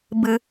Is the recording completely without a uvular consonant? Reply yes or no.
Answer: yes